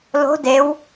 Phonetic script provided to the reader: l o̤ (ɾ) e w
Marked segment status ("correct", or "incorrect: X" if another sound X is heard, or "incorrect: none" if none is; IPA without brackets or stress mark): incorrect: d